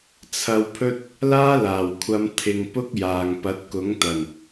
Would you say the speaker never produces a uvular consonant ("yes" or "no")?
yes